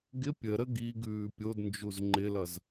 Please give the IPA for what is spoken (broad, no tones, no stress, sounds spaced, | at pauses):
ɡ ɪ pʲ ə ɾ ə ɡ i ɡ ʉː pʲ o d n d͡ʒ u z ŋ͡ǃ ɪ l ʌ z